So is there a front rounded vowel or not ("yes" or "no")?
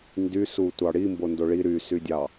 yes